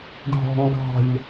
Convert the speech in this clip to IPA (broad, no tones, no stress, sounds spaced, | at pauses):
ɖʱ ɔ̤ ŋ ɡ ɑ̤ ʎ